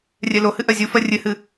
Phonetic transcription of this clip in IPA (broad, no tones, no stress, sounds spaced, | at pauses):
rʲ ɛ l o h ɨ ʔ ɜ zʲ u f ɜ rʲ ɨ h ɨ